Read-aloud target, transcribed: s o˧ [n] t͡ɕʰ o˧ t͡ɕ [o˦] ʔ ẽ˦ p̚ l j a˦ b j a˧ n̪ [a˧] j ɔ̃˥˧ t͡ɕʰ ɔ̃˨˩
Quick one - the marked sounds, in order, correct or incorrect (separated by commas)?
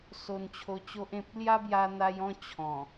correct, correct, correct